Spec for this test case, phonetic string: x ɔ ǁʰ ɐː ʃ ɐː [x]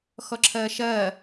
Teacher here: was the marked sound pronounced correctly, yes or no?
no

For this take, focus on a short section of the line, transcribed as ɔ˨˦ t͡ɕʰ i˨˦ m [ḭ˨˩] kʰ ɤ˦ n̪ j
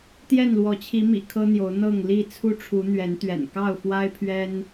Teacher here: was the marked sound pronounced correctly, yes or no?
yes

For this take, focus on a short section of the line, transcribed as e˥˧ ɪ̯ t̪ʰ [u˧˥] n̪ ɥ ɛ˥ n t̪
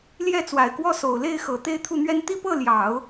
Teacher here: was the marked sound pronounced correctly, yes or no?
no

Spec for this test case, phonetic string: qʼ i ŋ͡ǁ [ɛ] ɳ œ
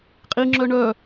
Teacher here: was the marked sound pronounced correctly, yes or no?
no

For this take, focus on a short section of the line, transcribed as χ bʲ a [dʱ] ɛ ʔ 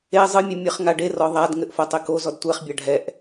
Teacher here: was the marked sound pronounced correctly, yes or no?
no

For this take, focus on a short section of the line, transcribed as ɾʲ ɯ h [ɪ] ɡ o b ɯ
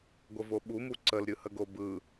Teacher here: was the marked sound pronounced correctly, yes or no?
no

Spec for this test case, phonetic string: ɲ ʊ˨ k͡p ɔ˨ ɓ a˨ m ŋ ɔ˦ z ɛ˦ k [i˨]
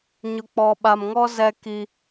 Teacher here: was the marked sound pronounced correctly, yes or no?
no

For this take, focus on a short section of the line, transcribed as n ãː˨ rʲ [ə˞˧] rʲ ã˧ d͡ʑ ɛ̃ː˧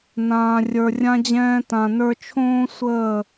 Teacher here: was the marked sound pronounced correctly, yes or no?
no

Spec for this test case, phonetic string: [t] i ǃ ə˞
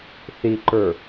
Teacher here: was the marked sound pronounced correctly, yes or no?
no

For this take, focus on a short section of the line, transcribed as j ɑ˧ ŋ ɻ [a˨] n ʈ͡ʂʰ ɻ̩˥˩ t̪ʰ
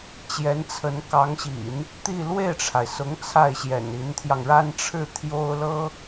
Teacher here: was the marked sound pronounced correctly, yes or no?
no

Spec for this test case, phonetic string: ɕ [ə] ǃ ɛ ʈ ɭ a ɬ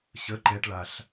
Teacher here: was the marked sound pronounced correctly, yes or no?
yes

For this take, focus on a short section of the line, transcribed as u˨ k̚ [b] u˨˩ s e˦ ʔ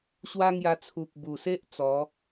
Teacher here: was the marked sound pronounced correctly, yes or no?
yes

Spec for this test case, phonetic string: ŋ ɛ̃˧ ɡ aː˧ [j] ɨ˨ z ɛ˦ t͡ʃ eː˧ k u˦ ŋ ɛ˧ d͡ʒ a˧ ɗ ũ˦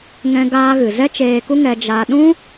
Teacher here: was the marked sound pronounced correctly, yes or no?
no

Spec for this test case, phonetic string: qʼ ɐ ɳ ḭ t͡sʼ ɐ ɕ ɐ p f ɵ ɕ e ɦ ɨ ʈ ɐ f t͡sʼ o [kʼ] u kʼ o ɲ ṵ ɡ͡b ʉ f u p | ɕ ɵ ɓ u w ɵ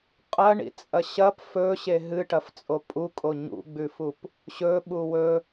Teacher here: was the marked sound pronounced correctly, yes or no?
no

